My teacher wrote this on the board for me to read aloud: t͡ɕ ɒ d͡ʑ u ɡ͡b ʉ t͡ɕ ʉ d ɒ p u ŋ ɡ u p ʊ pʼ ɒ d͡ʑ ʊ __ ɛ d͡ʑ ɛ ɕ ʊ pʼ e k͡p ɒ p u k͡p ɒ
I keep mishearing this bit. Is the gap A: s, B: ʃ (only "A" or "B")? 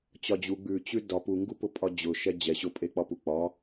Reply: B